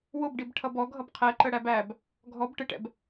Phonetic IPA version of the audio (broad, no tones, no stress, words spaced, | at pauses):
wʊbɖib ʈʰʌbɔɡʱʌb qʰɛǃə ɽæbæb | ɡʱɔb ʈɪʈɛ̰b